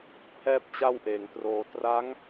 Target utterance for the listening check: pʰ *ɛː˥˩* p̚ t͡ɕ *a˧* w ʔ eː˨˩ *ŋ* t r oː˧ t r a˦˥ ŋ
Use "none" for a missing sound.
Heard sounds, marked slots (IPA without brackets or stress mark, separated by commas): ɛː˥˩, a˥˩, ŋ